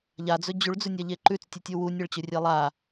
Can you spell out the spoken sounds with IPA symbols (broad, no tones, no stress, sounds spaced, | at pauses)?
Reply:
ʎ a d͡z ɵ d͡ʑ ʉ ɭ d͡z ʉ nʲ a ʎ e ǃ ʉ t͡s tʲ ʉ tʲ u w u nʲ ɐ ɭ t͡ɕ ɵ rʲ e lˠ a